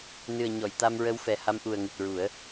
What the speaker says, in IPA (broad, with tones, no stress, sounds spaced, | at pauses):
n ɨ˨˩ ə̯ ɲ ɔ˨˩˨ j t̪ a˧ m ɹ ə˧˥ w f ɛ˨˩ h a˧ m ʔ u˨˩ ə̯ ŋ ɨ˨˩ t̚ ɹ u˨˩˦ ə̯